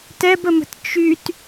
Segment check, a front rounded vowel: present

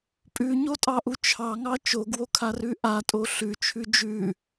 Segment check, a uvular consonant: absent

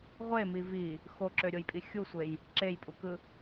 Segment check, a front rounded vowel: present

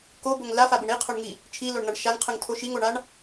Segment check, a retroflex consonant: present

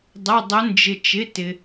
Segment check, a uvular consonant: absent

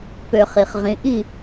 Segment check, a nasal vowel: present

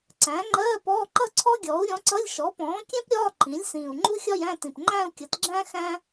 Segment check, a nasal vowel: present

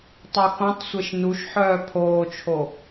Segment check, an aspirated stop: present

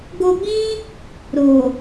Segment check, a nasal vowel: present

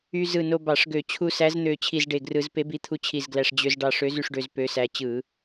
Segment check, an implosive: absent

